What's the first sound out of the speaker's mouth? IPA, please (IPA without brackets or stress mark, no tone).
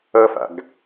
ʌ